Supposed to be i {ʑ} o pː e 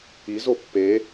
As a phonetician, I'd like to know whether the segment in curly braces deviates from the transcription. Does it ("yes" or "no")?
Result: yes